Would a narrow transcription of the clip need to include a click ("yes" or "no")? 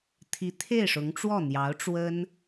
no